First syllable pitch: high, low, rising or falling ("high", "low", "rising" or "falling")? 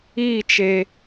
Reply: falling